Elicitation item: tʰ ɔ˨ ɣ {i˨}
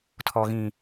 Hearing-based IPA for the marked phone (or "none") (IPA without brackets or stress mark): ĩ˨